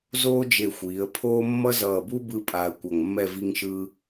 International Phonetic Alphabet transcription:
zoː˥d͡ʒe˧˩ xʷiː˩˧ə̯pʰoː˥ mːʌ˥zʌː˧˩buː˥ bɯ˥pʼaː˧ə̯kʷʌ˧˩ŋmːɛ˥˧ vi˥ŋʃɯ˥

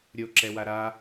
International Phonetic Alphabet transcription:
ɾʲo ǁɛwaɾa

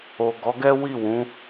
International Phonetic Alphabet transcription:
o˨ ɡɔ˨˦ɡɛ˦ wi˦˨wũ˨˦

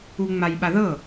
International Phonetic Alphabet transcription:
uŋ͡majɓaðɤ

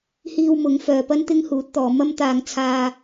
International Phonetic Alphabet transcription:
hiː˧w mʊ˨˥ŋfœː˨˧pɐ˥n t̪ɪ˥ŋhuː˨˥t̚t̪ɔː˨˧ mɐ˥mt̪aː˧ŋt͡sʰaː˧

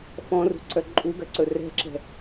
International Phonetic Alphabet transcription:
fɔ̃rṳ ǀœǃʼuɡœ ǀɵrɛ̤ǁɛ̤

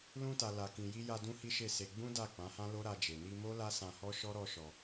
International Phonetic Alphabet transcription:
lũ˧ta˨ la˨ kĩ˨ji˧ja˧ dũ˦hi˦ʃe˦˨se˧ ɡ͡bũ˦ da˦˨k͡pã˨˦hã˦ lo˦ɾa˧d͡ʒe˨ ni˧mo˦ la˦sã˧hɔ˦ʃɔ˦ ɾɔ˦ʃɔ˧

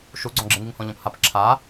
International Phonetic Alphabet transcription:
ʃuɡ͡ǀɔ̃ɡ͡ǁɪŋiŋ hɔ̃ʎɔ̃phap ǁʰa

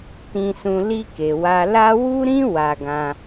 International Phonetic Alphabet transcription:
tĩ˧sũ˧ li˧ke˨ wa˧ la˦ wu˦ɾĩ˦ wa˧ɡã˧

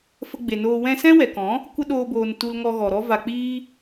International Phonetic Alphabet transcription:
fə˧ɡ͡be˨noː˧ wɛ̃˧sɛ̃˦ wɛ˨kɔ̃˨˦ | kʷə˦ɗoː˧boː˨n tu˧lŋɔ˧ɣɔ˨ɾɔ˦ va˧k͡piː˦

